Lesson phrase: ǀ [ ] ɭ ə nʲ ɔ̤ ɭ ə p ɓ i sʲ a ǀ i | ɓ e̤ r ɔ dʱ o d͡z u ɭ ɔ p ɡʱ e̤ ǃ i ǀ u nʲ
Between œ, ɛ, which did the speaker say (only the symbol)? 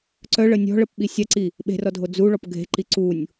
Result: œ